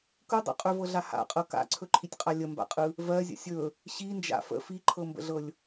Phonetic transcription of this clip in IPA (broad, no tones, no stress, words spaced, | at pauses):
kɯ dˤə̰ qʼɵvɤɮa ha̰qʼɤ ka̰ǀʰɵǃʰitʲqʼa lʲəmba̰qʼɯ | vɜzʲə̰ sʲɵ | ɕind͡ʒa̰ fə̰ fiǃʰɤmbə̰ɮɤlʲ